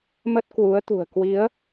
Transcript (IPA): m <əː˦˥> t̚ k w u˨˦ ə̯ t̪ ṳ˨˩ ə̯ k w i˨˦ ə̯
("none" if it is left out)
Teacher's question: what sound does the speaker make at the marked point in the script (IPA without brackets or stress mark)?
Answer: ə˦˥